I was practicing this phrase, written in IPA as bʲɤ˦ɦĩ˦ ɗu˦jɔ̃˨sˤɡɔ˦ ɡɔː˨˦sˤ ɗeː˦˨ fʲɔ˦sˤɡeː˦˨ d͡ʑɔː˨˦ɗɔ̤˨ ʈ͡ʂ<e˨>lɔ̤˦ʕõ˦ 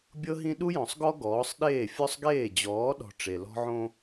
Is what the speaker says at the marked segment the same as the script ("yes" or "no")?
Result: yes